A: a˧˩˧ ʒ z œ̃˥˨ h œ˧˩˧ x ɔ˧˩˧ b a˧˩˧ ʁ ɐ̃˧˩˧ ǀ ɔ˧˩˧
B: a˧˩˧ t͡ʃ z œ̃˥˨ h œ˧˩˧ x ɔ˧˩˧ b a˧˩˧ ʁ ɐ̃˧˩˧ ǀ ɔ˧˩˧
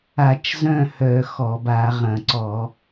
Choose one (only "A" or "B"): B